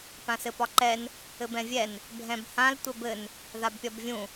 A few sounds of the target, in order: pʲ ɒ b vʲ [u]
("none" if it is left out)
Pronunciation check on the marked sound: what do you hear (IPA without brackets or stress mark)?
ũ